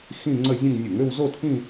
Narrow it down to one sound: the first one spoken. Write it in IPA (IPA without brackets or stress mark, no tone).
x